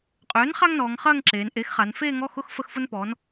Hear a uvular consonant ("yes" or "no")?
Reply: yes